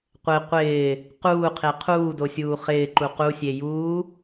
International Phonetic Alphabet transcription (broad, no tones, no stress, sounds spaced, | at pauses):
qʷ e qʷ ɪː | q uː qʰ e qʰ uː d o sʲ uː χ ɪː ǃ u q u sʲ e j uː